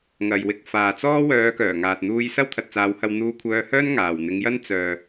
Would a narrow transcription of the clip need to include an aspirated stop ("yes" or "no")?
yes